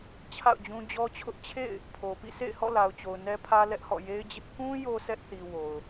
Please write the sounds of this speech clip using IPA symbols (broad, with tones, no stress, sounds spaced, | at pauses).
t͡ɕʰ a̰˦˨ ʊ̯ d͡ʑ ũ˦ d͡ʑ ɔ˦ t͡ɕʰ ʊ˦ ʔ t͡ɕʰ ḛ˦˨ ɪ̯ | pʰ o˨ p ḭ˦˨ s ḛ˦˨ ɪ̯ h ɔ̰˦˨ l a˨ ʊ̯ t͡ɕ o˨ ʊ̯ n ɛ˦ pʰ ä˦ l ɛ˦ ʔ h ɔ̰˦˨ j e˦ ɪ̯ d͡ʑ ɪ˦ ʔ k ũ˦ j o˦ sʰ ɛ˦ ʔ θ i˨ w o˨ ʊ̯